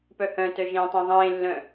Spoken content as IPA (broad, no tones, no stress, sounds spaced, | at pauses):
p œ h œ̃ t œ ʒ ẽː tˤ ã ðˤ ẽː lː œ̃